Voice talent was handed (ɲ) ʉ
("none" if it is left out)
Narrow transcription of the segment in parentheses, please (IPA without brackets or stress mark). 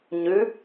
ɲ